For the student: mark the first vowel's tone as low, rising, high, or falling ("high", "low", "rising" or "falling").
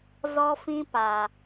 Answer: high